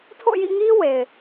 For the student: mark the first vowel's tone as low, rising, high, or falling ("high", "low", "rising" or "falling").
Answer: falling